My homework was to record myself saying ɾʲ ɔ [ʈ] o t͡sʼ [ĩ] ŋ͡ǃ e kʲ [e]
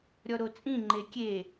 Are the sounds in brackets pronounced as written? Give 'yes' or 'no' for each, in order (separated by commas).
no, yes, yes